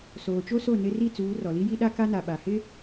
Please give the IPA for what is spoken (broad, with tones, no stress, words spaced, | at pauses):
soː˨t͡ʃo˦so˦˨ nɪ˦ ri˦˨t͡suː˨˦rɔ˨li˦ ji˦ɗa˦ka˦na˨ ɓa˨hɪ˦